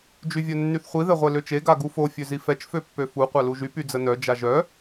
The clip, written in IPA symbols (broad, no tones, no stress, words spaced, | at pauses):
d͡ʒyvʲœnːyθχʷi ðɛʁʷɛløt͡ʃe ɡaɡufo fʲøzifɛt͡ʃ føpːøfu qʷaluʒy pyd͡zənœ d͡ʒaʒœ